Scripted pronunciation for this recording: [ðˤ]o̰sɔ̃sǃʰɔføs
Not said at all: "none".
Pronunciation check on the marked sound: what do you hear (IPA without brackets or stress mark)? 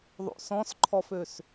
ðˤ